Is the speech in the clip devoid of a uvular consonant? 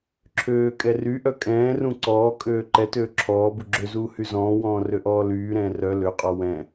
no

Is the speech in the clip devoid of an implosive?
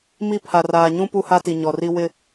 yes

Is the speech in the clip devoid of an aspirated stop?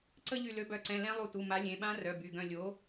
yes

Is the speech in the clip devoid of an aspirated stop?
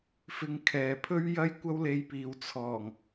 no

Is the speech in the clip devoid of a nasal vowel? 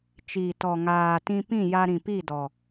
no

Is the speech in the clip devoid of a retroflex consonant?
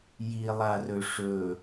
no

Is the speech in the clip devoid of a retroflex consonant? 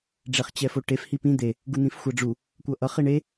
no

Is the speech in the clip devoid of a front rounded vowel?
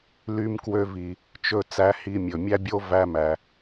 no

